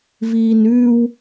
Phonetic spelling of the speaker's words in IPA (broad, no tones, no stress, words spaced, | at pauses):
viːnʉːw